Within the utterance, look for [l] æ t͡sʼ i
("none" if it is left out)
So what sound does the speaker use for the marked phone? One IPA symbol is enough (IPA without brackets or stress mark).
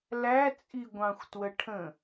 l